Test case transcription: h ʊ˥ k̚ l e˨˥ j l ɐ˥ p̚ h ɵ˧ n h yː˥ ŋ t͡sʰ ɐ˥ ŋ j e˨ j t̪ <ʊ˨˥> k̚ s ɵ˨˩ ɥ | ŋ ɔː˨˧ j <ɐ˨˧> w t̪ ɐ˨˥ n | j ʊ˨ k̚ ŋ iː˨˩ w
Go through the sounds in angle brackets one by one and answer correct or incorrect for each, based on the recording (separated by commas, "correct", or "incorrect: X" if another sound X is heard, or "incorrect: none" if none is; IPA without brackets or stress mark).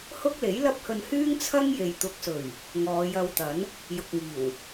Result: correct, incorrect: ɐ˧